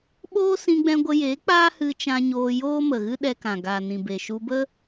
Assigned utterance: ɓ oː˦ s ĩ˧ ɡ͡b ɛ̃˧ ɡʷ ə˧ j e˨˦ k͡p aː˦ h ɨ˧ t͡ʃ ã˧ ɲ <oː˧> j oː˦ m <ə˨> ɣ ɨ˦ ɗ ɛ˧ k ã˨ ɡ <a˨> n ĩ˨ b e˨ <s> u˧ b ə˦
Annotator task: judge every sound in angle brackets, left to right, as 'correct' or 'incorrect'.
correct, correct, correct, incorrect: ʃ

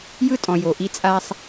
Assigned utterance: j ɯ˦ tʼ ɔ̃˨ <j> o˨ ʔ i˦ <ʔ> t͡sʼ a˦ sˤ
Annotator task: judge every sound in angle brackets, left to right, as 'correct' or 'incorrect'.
correct, incorrect: none

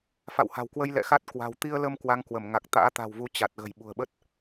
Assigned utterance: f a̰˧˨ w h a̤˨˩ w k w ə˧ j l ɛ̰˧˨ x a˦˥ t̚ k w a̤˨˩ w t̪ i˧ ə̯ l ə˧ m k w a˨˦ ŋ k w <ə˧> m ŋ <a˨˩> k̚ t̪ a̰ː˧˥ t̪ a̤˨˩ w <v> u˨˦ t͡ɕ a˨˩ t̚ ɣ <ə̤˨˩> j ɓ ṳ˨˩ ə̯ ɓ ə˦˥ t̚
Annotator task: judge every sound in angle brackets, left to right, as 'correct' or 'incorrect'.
incorrect: ə˧˩, correct, correct, correct

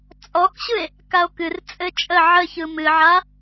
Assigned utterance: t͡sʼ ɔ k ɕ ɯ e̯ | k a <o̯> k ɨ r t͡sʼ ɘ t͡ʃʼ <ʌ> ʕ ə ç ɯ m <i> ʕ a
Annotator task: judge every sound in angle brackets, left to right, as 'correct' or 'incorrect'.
correct, incorrect: ə, incorrect: ɨ

